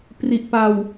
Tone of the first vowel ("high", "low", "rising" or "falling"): low